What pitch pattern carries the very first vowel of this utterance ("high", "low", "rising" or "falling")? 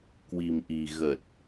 low